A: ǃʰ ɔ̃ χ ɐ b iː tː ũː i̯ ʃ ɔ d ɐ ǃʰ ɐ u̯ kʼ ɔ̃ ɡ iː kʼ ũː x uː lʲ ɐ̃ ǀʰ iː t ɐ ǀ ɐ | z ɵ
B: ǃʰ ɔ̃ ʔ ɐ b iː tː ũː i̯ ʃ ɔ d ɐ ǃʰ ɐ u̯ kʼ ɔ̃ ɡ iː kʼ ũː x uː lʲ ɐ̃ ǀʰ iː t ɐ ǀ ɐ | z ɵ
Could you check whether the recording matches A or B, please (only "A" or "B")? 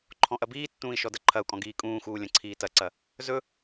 B